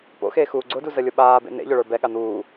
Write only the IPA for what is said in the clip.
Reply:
p o̰ x eː x uː ɡ͡ǀ ʊ d u z ə lʲ ʊ ɓ aː b ḛ n̪ ḛ ʎ ʊ ɭ ə˞ b ɛ ɠ a n̪ uː

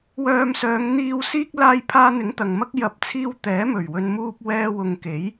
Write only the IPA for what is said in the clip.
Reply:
w œː˧ m s œː˨˧ ŋ n̪ iː˨ w s iː˥ k̚ l aː˧ j pʰ aː˧ n̪ ɪ˨˥ ŋ t̪ ɐ˨ ŋ m ɐ˥ k̚ j ɐ˨˥ p̚ t͡sʰ iː˧ w t̪ ɛː˨˥ m ɵ˨˩ ɥ w ɵ˨ n m uː˧ p̚ w ɛː˧ w ʊ˨ ŋ k e˨˥ j

